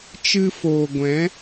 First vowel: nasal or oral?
oral